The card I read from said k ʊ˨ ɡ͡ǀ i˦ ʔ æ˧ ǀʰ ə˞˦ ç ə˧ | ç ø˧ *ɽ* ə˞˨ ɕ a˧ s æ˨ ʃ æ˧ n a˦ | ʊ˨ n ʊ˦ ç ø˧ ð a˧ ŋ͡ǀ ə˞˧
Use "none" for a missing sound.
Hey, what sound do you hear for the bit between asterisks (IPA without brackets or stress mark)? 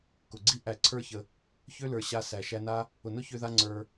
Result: l